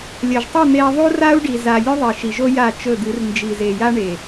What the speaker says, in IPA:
lʲɐ˨ʒtˤɨ˦˨ n̪e˦i̯ ðˤu˦ra˦u̯ɖi˨za˨ lʲʉ˦ðˤi˨ʃi˨ʒo˦ ja˦˨ t͡ʃɵ˦˨d̪ɨ˨˦r nd͡ʒi˨ze˨ja˦ ɳe˨

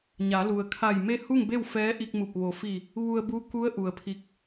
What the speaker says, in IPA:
ɲa˩˧lu˩ə̯ kʰa˧˩j me˥˨ hu˥˨ŋbe˥˨w fɛː˧˥ʔi˧k̚mu˧˩p̚ ʋo˩fi˧˩ | ʋu˧ə̯bu˧˥ ku˧˥ə̯ʔu˩ə̯ pʰi˧k̚

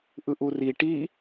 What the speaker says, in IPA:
ʔɯʔuri ʈi

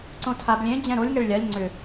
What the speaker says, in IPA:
ǀõtʰab lʲẽ d͡ʑɛ̃ɾolʲ ŋɛɭlʲalʲ ŋ͡ǀʏ

